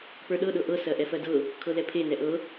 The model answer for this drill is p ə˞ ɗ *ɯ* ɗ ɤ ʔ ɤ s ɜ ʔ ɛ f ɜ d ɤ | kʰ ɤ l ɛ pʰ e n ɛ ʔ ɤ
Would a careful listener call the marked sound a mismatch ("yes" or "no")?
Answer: yes